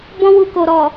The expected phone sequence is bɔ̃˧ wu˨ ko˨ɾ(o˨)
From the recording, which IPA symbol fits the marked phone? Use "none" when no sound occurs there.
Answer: ɔ˨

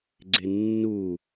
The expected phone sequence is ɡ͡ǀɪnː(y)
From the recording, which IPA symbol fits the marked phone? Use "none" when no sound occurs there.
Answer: u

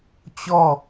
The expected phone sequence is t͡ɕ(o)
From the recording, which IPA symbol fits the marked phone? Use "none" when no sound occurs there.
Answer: ɔ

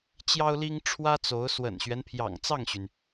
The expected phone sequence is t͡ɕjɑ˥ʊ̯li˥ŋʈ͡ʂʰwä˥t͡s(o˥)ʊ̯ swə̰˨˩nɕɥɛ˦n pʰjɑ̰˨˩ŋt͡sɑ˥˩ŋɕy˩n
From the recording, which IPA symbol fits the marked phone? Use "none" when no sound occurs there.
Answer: o˧˥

